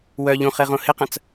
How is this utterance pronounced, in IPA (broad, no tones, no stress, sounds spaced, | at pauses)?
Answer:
w œ ʎ ũ χ e ʁ õ h ɪ q ɐ̃ t͡s